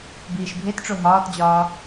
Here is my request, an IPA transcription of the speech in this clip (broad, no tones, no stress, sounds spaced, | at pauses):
b iː ʃ bʱ e t ʈ͡ʂ o ɦ ɒː t d͡ʑ ɒː